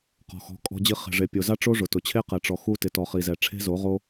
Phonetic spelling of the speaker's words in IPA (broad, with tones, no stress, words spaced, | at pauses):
qɔ̤˨xɔ̤˨˦kʼɔ̤˧d͡ʑi˧ χe̤˨ʐe˨pʲo˨za˦ ʈ͡ʂo˦ʐʊ˨tʊ˨t͡ɕʰe˦ qɛ˨ʈ͡ʂɔ˨ xu˧ tɪ˨tɔ˨χi˨zɛ˨ ʈ͡ʂʰe̤˦zo˨˦ʁo˦